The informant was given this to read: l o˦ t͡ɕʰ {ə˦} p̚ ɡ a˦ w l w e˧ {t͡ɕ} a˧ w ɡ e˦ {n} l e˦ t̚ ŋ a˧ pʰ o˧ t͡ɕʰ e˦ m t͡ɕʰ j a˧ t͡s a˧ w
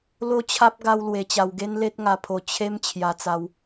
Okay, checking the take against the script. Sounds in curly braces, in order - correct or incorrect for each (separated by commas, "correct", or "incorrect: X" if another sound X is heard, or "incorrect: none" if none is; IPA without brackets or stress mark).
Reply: incorrect: a˦, correct, correct